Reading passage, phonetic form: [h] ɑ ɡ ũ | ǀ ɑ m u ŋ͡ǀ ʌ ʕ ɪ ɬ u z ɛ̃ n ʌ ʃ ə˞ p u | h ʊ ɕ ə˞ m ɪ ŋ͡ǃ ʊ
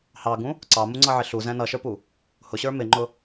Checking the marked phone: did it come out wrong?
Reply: no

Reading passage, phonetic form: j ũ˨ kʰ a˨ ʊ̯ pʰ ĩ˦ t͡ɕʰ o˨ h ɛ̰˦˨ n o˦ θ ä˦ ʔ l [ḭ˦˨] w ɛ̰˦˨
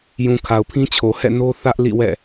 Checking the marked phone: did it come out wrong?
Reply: no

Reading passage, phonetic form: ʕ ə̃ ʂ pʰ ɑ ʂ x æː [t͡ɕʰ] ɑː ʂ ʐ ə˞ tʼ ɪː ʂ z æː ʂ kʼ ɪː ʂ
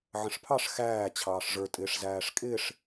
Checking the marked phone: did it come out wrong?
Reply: no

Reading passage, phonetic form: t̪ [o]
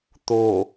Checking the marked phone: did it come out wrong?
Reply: no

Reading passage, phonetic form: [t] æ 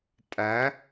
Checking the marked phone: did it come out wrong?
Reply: yes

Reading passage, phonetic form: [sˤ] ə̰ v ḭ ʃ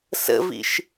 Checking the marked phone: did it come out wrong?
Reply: yes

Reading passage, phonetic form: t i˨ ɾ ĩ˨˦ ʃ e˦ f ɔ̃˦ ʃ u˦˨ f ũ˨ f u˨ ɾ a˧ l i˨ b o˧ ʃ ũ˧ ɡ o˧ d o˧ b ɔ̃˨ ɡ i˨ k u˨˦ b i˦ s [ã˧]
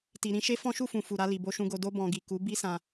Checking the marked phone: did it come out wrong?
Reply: no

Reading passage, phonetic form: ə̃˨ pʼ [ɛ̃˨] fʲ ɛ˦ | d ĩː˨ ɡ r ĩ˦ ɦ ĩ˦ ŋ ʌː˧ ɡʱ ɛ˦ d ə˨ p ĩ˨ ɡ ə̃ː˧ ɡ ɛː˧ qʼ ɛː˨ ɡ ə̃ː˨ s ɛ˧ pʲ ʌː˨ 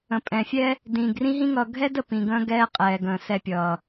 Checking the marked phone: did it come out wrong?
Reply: no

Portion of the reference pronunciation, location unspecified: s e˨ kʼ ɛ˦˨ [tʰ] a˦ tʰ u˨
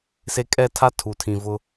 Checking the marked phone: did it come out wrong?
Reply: no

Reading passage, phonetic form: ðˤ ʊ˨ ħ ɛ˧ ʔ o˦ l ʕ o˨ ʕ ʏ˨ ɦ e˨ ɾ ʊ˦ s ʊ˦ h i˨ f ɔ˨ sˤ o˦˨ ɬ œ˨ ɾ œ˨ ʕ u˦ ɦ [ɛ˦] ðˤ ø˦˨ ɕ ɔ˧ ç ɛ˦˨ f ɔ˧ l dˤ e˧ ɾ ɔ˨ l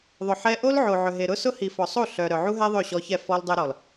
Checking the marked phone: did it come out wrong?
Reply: no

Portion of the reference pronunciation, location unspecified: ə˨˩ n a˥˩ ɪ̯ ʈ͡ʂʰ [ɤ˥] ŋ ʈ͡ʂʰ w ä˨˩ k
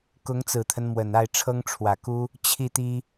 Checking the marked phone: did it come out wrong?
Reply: no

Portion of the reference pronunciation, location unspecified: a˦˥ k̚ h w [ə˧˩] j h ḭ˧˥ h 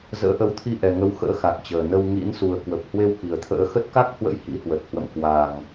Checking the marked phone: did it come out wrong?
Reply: yes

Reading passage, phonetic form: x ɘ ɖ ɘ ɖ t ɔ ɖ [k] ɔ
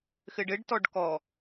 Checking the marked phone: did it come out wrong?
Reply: no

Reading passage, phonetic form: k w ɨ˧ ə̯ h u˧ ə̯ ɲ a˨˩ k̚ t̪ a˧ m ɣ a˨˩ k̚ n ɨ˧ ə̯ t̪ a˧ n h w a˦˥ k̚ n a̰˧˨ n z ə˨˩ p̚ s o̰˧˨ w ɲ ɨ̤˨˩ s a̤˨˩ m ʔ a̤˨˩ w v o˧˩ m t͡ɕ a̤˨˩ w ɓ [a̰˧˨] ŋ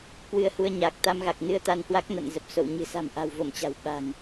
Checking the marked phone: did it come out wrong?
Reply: yes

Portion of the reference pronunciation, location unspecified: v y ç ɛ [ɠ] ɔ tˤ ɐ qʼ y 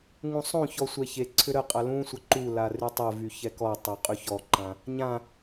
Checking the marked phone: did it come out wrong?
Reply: yes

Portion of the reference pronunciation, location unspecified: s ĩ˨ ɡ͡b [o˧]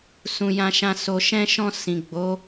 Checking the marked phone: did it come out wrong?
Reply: yes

